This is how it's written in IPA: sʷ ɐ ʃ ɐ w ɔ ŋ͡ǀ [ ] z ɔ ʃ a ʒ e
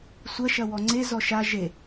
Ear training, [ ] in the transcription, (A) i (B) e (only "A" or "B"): B